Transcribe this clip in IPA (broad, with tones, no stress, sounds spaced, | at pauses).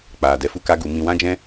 k͡p aː˨ d ɛ˧ f u˦ k a˦ ɡ u˨˦ m ĩ˧ w ã˦ d͡ʒ ɛ̃˦